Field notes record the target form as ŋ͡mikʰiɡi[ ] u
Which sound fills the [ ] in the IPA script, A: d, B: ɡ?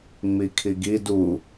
A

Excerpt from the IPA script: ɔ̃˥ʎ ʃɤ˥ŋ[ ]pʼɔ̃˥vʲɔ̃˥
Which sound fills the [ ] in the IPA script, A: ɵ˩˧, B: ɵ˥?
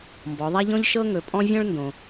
A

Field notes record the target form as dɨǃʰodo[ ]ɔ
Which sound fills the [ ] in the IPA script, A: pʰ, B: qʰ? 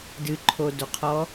B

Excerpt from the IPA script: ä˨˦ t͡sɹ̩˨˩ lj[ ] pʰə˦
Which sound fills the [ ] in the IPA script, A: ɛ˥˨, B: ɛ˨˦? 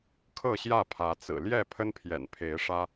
A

